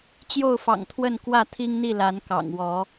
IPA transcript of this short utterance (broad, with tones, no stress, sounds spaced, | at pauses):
t͡ɕ j o˥˨ ʊ̯ f ɑ̰˨˩ ŋ t̪ʰ w ə˥˨ n k w ä˥˨ t̪ʰ i˦ ŋ n̪ i˥˨ l a˨˦ n k ɑ̰˨˩ ŋ w ɔ˨˦